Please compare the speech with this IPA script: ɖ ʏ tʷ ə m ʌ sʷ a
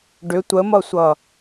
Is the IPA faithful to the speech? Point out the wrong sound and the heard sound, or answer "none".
a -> ʌ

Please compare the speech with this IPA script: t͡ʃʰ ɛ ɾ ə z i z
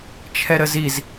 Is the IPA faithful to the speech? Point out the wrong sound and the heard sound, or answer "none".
none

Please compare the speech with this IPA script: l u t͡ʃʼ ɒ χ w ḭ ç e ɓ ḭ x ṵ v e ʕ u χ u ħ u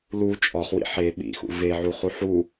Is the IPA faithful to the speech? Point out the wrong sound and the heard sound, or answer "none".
ç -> ħ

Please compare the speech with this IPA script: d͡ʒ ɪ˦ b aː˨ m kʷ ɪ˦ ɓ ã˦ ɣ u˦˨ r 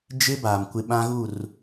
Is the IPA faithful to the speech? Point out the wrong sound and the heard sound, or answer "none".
none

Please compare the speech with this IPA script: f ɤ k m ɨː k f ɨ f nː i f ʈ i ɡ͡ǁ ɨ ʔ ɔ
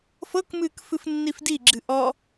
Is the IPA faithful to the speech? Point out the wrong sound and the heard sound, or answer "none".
ʈ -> d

